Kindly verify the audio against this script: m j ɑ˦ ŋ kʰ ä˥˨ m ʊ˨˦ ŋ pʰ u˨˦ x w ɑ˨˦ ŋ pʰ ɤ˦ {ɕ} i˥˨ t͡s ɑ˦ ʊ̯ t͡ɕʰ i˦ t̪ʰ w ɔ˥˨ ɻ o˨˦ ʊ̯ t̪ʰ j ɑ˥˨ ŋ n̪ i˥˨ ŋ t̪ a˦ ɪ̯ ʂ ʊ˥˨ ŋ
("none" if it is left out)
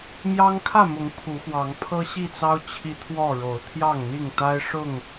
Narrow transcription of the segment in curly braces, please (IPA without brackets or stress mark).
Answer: ɕ